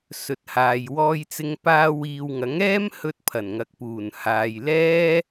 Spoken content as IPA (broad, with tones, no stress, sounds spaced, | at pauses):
s ɵ˨ t̚ h aː˨ j w ɔː˧ j t͡s ɪ˧ ŋ p aː˧ w iː˨ w ŋ ɐ˨˥ ŋ ɛː˥ m h ɵ˧ t̚ pʰ ɐ˨˩ n ŋ ɐ˨ k̚ p uː˨˩ n h aː˨ j l ɛː˥